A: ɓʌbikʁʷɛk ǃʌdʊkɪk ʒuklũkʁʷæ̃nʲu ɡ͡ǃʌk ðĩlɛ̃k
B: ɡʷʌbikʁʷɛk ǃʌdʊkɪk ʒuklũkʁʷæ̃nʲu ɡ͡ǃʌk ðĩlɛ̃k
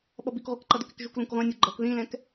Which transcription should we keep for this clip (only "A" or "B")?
A